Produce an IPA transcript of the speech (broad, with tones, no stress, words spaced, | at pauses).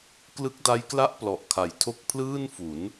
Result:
klɯ˦˥k̚da˦˥j kla˥˩ʔplɔ˨˩ʔkʰa˩˦j tʰo˥˩k̚ pʰlɯː˥˩nfu˩˦n